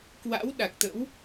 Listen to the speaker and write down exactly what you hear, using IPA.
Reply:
kwa̰˧˥w ɗa˨˩k̚t̪ə̰˧˥w

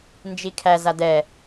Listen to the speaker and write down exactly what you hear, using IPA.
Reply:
nd͡ʒikʰæ zadɛ

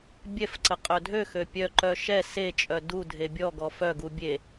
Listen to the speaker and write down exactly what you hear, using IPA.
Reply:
bʲɛfǀə qʼœdʱøxø pʲœǃœ ʃɛ set͡ʃʼœ dudʱe bʲɔɡɔ fœɡu bʲe

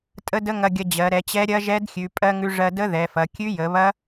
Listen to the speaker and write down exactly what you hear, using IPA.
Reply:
tʼə˦˥də˦˥ŋɐ˧ɡʲɐ˧ d͡ʑɜ˩˧ɾɛ˩˧t͡ɕɛ˦˥ ɾʲɐ˦˥ʒɛ˦˥dxʲʉ˩˧ pʼɜ˦˥ŋʉ˦˥ ʐɜ˧də˦˥ ðɛ˩˧fɐ˩˧ kʲʉ˦˥jə˩˧βɐ˦˥

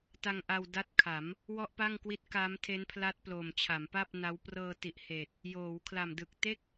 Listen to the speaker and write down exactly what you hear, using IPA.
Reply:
ta˧ŋʔa˧w da˦˥t̚kʰa˩˦m | wɔ˥˩ʔpa˥˩ŋkwi˦˥t̚ ka˦˥mtʰe˦˥npʰla˦˥t̚ plo˨˩mt͡ɕʰa˩˦mpa˥˩p̚ na˦˥w prɤː˧ti˨˩ʔheː˨˩t̚ | joː˩˦w kʰla˨˩mdɯ˨˩k̚te˥˩k̚

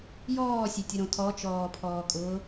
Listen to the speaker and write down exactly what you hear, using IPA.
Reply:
jɔːsʲetʲʊɾõ tʰɔt͡ʃɔːpʰɔːkʼʊː

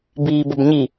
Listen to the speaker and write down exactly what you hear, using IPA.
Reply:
biːbəbɲi

